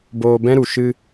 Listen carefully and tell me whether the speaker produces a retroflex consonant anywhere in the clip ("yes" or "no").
no